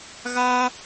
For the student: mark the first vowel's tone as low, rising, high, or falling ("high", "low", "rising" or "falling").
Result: high